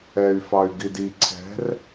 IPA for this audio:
ɛ y̯ f ɑ y̯ ɡ i d i ǀʰ ɛ̤ r

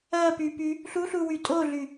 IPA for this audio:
ɜ p y p y | ɬ u ɬ u w y tʼ o ɮ y

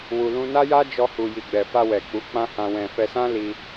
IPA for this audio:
w u˧ l ũ˦ n a˦ j a˦ d͡ʒ ɔ˧ h u˧ j i˧ ɡ͡b ɛ˧ f a˧ w ɛ˨ k͡p u˨˦ k͡p ã˦ h ã˧ w ɛ̃˧ f ɛ˧ s ã˦ l i˧

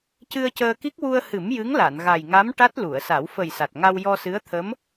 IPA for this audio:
c ɨ˧ ə̯ c əː˧ k i˦˥ k̚ w u˧ ə̯ h ɨ˨˩˦ m j ɨ˧˥ ŋ l a˨˩˨ n ɣ a˨˩ j ŋ a˧˥ m ʈ a˦˥ t̚ l u˨˩˨ ə̯ s a˨˩˦ w f ə˨˩ j s a˨˩ t̚ ŋ a˧ w j ɔ˧ s ɨ˧˥ ə̯ t̪ʰ ə˧˥ m

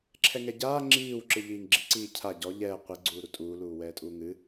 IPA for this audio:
ǁʰ ɛ ŋ ɛ ɟ aː ŋ͡ǁ iː w ǁ ɨ ʎ iː ŋ ɡ͡ǁ i ǀ iː cʰ a ɟ ɔ ʎ ɛː qʷ i ɡ͡ǀ uː ɾ u tʼ uː l uː w ɛː tʼ uː ŋ ɨ

